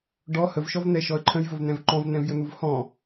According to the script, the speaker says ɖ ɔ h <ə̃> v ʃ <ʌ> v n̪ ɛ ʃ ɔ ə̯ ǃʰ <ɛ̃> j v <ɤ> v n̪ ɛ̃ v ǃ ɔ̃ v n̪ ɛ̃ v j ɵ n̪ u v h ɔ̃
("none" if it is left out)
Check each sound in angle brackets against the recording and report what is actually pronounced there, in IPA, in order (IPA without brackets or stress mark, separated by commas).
ə, ɔ, ə̃, ɵ